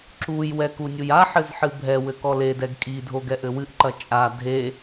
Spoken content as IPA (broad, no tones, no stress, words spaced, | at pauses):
ǁujwɛ kunʲujaħɘz ħɨbʱɛwɘ kɔledɛɡ kʼidʱoɡ ɛʔɘwɨʔǃɐ t͡ʃʼa dʱe